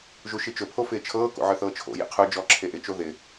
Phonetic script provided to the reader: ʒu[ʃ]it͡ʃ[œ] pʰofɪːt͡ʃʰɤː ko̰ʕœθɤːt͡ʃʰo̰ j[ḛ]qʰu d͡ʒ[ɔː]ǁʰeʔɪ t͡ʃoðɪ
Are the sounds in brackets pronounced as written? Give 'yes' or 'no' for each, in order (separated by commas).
yes, no, no, yes